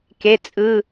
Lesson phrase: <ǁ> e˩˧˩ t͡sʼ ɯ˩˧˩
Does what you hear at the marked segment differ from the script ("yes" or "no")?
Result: yes